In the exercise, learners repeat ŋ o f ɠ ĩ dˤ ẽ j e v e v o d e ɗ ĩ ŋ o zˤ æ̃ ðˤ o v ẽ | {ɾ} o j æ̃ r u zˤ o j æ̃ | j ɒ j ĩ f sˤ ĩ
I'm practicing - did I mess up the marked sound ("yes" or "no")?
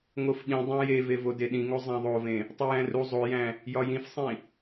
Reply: yes